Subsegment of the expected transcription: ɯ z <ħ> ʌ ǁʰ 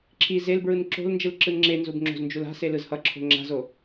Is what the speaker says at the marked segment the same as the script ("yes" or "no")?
no